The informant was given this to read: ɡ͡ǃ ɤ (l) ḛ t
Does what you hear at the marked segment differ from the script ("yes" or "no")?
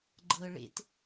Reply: yes